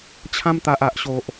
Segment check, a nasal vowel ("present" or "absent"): present